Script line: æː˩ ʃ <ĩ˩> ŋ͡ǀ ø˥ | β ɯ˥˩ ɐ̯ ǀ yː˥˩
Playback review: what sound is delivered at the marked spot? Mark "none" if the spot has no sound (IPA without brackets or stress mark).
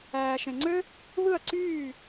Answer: ẽ˩